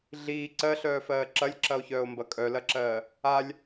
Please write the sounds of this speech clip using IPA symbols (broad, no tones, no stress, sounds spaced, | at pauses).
ɮ iː ǀ ɜ ɬ œː f ɜː ǁ ɐ lʲ ǁ ɐ o̯ ç œː o̯ m b ɐ kʼ œ l ɐ ǁ ɜː | a lʲ